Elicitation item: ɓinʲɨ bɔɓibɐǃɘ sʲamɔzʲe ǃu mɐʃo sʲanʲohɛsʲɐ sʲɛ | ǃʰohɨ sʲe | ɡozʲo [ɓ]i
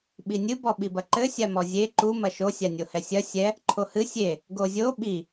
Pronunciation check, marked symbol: correct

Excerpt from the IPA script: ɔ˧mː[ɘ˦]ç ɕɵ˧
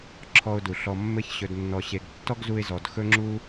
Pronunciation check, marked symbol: correct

